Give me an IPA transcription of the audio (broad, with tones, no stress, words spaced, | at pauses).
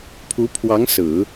pʰu˧˥pʰwɑ˧˥ŋ sɹ̩˨˩˦